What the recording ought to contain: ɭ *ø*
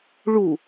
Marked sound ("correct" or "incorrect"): incorrect